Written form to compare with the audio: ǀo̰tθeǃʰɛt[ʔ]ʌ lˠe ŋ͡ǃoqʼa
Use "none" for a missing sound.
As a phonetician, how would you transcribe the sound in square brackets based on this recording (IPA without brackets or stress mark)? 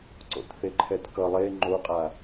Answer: k